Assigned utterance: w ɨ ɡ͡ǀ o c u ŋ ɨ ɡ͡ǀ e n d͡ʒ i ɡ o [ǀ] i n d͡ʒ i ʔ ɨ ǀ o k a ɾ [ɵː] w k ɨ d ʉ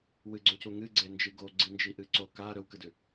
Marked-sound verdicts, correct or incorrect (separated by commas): incorrect, incorrect